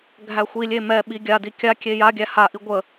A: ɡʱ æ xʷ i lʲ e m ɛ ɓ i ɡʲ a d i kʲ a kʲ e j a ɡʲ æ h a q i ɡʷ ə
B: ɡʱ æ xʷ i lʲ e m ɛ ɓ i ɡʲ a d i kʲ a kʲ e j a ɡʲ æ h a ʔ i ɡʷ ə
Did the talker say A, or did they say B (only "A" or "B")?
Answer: B